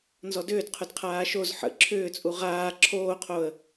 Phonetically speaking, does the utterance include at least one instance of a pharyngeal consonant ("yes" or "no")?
yes